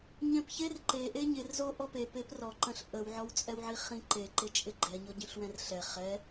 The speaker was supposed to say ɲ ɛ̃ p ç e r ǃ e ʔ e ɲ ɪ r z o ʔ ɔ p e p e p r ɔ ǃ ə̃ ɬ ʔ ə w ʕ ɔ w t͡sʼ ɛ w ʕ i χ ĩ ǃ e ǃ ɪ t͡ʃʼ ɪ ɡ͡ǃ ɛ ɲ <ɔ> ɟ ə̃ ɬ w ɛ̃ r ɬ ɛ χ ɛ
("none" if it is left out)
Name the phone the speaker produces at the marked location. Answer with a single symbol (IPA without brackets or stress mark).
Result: ɔ